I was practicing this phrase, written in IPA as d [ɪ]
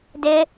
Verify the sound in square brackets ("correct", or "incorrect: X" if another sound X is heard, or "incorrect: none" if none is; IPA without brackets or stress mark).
correct